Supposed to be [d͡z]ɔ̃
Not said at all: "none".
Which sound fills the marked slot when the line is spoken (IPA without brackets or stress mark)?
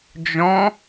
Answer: d͡ʒ